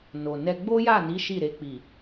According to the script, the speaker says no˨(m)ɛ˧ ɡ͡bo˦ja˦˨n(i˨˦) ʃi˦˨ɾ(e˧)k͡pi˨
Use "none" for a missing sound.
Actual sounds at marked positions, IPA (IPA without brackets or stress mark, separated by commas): n, i˨˦, e˧